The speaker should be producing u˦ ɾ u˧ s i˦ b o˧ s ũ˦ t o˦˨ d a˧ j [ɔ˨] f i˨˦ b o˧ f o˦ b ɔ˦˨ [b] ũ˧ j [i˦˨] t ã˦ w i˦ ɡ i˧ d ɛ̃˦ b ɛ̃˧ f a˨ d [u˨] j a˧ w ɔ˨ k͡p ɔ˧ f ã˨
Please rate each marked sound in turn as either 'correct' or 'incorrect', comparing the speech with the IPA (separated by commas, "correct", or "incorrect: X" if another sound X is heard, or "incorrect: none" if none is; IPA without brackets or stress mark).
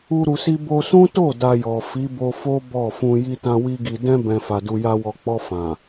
correct, incorrect: f, incorrect: i˦, incorrect: u˧